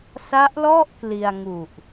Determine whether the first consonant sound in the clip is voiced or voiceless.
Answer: voiceless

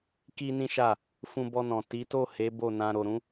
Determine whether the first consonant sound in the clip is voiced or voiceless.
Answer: voiceless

